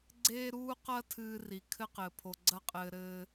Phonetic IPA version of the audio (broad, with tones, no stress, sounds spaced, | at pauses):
ɡ͡ǀ eː˥ ɾ uː˥ q ɐ˥ tʰ ɨː˦ r i˩ kʰ ɘ˥ q ɘː˩ pʰ o˩ ɡ͡ǀ ɐ˦ qʼ ɘː˨ ɾ ɘː˨